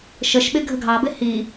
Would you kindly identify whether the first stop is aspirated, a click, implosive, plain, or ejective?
implosive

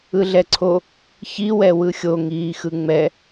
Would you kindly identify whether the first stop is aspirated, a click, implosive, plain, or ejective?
click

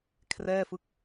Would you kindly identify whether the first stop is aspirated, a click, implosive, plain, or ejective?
aspirated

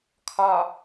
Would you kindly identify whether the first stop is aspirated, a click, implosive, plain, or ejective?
aspirated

